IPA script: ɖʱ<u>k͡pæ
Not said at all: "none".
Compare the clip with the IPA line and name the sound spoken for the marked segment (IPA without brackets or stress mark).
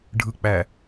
ɯ